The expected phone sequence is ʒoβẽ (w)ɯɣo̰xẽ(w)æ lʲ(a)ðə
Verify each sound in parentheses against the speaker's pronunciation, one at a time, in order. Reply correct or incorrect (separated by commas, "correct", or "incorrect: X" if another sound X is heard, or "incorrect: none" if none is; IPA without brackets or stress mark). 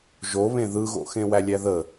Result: incorrect: ð, correct, incorrect: æ